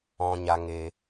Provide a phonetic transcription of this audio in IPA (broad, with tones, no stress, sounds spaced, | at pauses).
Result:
ɔ̃˨ ɲ a˨ ŋ e˨